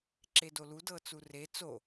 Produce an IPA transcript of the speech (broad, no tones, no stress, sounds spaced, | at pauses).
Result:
ǁ e d o l u d ɤ t͡s u r e t͡s o